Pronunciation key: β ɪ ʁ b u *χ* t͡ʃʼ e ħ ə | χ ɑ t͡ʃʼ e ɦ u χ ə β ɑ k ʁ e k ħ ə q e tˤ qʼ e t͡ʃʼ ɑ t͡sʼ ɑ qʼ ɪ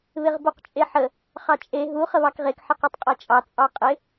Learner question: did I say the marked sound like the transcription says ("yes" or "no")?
no